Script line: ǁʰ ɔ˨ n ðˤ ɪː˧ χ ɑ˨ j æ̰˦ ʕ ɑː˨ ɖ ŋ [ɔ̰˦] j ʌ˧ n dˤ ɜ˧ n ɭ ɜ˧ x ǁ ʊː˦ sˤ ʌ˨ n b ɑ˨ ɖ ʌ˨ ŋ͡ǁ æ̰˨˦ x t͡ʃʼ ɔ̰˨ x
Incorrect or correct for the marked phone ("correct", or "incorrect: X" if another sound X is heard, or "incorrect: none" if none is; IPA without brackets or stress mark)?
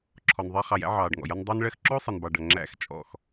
incorrect: ɔ̰˨